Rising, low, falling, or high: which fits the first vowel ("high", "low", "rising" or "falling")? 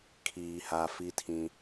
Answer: low